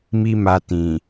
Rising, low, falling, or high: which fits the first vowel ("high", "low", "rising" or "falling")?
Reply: high